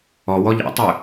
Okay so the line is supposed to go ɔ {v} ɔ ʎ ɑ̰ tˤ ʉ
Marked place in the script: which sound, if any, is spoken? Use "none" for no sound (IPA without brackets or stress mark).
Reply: w